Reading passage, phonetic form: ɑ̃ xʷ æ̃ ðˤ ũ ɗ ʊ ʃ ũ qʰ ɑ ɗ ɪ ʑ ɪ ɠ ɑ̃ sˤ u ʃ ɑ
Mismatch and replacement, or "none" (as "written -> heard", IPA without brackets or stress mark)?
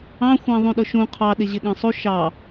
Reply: none